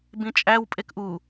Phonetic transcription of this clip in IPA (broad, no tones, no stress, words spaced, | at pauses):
bĩt͡ʃʼæw pʼekʔu